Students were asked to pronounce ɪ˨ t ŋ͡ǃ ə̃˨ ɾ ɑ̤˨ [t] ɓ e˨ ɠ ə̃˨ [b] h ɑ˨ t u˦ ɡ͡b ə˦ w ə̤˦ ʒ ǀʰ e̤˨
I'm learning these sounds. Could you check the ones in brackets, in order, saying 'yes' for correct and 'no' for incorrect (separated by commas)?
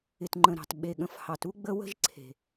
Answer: yes, no